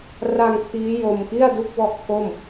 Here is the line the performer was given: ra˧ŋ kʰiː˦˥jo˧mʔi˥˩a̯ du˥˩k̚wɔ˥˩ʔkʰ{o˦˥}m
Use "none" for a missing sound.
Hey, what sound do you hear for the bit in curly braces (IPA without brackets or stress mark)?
o˥˩